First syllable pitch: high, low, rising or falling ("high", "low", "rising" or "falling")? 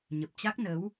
low